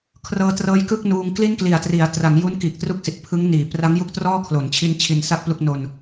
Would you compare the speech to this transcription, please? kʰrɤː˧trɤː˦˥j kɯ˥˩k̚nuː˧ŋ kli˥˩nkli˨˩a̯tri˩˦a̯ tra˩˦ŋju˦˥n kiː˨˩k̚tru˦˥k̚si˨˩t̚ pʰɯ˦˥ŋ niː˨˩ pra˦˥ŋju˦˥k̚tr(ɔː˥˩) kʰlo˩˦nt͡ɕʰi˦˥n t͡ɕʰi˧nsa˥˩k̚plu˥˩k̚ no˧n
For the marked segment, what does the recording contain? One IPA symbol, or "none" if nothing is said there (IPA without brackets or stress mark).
ɔː˥˩